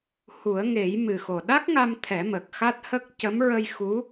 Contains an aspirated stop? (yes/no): yes